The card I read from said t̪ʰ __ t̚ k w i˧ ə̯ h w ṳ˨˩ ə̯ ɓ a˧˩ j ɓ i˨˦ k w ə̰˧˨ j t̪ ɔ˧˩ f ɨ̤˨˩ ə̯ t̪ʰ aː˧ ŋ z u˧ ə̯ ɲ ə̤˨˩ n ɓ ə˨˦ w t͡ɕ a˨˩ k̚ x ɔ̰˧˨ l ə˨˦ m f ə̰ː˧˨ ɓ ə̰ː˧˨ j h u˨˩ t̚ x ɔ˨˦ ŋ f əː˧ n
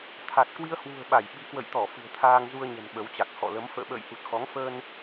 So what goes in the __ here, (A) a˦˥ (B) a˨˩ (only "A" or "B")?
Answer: B